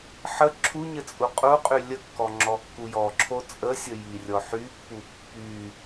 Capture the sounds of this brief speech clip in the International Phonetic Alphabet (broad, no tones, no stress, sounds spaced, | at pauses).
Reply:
ħ ə ǁʰ u ɲ ɘ t͡sʼ u qʼ u qʼ y lʲ ə kː ɔ ŋ͡ǁ ɔ kː u j ɔ ǁʰ o t͡sʼ ə sʲ ə j i rʲ ɔ ħ y pː u pː y